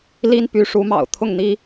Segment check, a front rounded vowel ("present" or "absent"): present